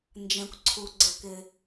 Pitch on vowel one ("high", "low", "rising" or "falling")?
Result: low